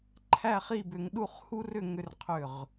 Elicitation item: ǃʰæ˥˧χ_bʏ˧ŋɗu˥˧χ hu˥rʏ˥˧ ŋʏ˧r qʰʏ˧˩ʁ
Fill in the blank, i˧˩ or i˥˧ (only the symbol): i˥˧